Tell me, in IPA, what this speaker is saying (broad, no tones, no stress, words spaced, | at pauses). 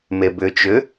mebʏt͡ʃʏ